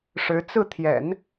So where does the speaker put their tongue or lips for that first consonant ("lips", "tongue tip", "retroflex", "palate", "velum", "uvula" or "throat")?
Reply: retroflex